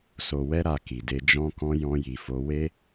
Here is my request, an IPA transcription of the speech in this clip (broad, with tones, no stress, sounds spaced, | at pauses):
s o˨ w ɛ˧ ɾ a˨ k i˨ d e˧ d͡ʒ ɔ̃˧ k ɔ̃˧ j ɔ̃˧ j i˨ f o˨˦ w e˦